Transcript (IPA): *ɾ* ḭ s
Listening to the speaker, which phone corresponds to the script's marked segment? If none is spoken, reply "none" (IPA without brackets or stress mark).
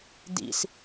d